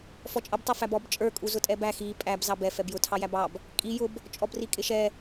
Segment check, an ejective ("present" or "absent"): present